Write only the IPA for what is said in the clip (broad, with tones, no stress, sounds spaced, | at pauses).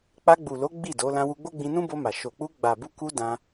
k͡p a˧ ɡ͡b u˨ l o˨˦ ɡ͡b i˦˨ d o˨˦ l ã˧ w u˧ ɡ͡b o˦ ɡ͡b ĩ˧ n ũ˦ b o˧ m a˨ ʃ o˨ k͡p u˧ ɡ͡b a˨ b u˧ k u˧ d ã˧